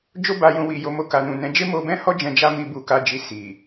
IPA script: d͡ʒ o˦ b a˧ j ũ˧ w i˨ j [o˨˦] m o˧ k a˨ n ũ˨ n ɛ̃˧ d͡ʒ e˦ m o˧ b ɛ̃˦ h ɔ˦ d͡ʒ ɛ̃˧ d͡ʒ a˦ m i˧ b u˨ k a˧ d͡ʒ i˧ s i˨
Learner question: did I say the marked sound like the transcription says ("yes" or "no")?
no